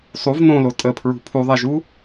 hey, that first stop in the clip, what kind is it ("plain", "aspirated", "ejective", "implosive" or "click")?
ejective